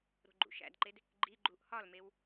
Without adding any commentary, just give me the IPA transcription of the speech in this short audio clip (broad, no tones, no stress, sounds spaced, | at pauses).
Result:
ɾ o̤ ɡ͡ǃ ṵ ʃ æ̰ d ǃ e d | ɡ͡ǃ i ɡ͡ǃ u ʔ h ɒ l m e w